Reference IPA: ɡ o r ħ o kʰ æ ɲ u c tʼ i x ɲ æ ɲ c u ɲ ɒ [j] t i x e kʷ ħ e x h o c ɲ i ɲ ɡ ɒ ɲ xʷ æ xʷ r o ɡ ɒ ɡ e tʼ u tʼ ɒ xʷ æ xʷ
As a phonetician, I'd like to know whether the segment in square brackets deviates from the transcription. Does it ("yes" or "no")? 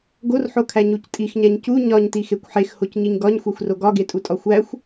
yes